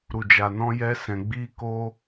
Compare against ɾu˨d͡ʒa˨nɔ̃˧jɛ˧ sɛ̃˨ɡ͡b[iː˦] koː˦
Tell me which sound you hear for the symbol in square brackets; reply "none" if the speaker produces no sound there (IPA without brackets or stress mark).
iː˦